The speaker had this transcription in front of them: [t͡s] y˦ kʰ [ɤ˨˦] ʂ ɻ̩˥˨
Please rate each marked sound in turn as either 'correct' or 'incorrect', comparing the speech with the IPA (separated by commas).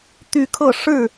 incorrect, incorrect